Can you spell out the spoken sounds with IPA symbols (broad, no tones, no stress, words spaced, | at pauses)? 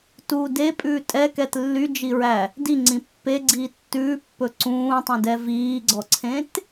tu depʼʉː tʼɛkɛt lːyd͡ʒiɹæ | diŋ͡ǀĩ pːeɡ͡ǀiː tːʉːpːɵ ǀũːtˤũdɛ viːɡ͡ǀɔǀʰẽt